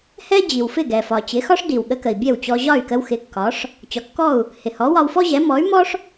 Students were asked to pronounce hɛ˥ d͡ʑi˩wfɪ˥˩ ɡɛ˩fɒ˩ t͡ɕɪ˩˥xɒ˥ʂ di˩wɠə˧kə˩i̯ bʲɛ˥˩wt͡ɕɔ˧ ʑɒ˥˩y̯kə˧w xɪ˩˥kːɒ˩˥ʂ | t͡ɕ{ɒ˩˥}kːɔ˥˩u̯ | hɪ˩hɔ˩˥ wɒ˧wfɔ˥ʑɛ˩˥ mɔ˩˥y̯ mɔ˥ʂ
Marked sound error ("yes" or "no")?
yes